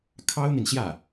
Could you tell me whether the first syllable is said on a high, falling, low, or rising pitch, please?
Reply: high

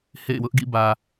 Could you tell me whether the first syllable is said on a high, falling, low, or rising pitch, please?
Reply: falling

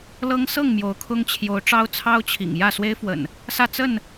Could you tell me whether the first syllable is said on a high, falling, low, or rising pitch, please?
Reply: high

